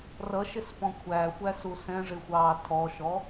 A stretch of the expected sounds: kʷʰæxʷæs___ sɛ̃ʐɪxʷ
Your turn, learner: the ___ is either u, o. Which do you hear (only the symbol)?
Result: u